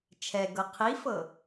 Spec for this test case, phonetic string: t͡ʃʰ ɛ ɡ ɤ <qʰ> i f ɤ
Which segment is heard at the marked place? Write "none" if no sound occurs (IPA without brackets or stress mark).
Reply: qʰ